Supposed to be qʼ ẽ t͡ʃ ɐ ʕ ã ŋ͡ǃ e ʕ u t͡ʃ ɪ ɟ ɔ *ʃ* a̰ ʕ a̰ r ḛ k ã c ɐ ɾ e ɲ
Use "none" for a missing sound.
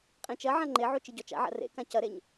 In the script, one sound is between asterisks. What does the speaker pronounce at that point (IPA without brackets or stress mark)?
t͡ʃ